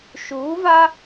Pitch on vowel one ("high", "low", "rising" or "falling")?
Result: rising